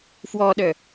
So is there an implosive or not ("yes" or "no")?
yes